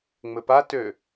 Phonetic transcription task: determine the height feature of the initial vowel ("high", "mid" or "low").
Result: mid